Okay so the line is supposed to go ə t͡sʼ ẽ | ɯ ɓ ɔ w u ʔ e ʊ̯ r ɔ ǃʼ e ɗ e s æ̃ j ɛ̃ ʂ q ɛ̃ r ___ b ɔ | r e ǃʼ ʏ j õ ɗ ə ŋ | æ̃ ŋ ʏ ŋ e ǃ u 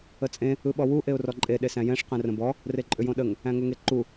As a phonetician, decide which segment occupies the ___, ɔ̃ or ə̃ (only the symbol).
ə̃